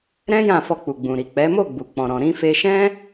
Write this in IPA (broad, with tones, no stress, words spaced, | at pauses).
ɾɛ̃˦ jã˦˨fɔ˧ k͡pu˨ɡ͡bũ˨ɾi˨ k͡pɛ˨˦mo˦˨ ɡ͡bu˨k͡pɔ̃˨ɾɔ̃˨ ɾĩ˧fe˧ʃɛ̃˦